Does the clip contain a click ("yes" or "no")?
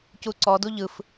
yes